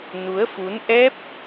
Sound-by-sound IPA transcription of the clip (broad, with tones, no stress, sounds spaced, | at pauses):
n u˨˦ ə̯ f u˨˦ n ʔ ɛ˦˥ p̚